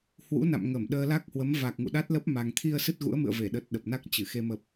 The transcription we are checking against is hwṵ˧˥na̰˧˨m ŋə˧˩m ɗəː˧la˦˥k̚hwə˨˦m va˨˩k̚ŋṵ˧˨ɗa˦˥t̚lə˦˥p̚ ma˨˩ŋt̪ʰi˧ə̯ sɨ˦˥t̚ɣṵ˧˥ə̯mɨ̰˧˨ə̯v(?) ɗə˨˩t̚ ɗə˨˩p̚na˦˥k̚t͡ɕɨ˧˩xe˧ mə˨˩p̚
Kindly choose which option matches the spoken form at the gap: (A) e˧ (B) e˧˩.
B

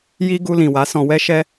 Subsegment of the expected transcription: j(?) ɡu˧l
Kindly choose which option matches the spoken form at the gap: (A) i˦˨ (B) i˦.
B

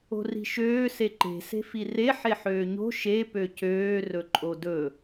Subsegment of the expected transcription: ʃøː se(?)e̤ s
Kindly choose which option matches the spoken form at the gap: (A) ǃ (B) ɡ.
A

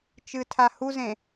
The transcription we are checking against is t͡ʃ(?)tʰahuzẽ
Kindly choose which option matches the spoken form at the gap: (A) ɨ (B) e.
A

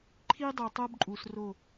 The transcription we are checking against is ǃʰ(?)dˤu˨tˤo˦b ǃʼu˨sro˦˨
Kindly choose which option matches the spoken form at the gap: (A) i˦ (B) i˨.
A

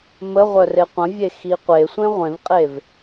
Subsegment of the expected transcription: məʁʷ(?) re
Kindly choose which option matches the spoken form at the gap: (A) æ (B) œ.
B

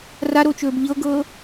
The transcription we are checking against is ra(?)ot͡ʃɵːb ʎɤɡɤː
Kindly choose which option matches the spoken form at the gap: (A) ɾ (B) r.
A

